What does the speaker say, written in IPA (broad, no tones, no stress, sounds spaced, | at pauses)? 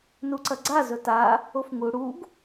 n u ǀ ɐ ɡ͡ǀ a z ɵ t a | o f ŋ u ɽ u ɡ